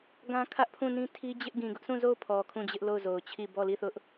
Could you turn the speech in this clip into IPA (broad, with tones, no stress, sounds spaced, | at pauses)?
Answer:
ɡ ã˦ kʰ ä˦ ʔ pʰ ũ˦˨ n ĩ˦ tʰ i˦ d͡ʑ ɪ˦ ʔ ɡ ĩ˨ ɡ ʊ˦ ʔ sʰ ũ˦˨ z o˦˨ ʊ̯ pʰ ɔ˨ kʰ ũ˦˨ d͡ʑ ɪ˦ ʔ l o˦˨ ʊ̯ z o˨ ʊ̯ t͡ɕʰ i˦˨ b ɔ˦˨ l i˦˨ θ ʊ˦ ʔ